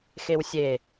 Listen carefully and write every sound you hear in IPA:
x e w sʲ e

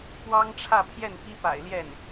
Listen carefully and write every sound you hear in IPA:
p w ɑ˥ ŋ ʈ͡ʂʰ ä˥˧ pʰ j ɛ˥˩ n p i˥ p a̰˨˩ ɪ̯ l j ɛ˥˩ n

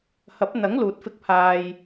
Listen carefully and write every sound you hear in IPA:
h ɐ˨˥ p̚ n̪ ɐ˨˥ ŋ l uː˨ t̚ f ɪ˧ k̚ pʰ aː˧ j

